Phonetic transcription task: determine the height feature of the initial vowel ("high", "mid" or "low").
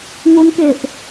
high